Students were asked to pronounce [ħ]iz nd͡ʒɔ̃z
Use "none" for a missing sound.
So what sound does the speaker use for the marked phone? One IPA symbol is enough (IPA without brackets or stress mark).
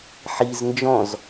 ħ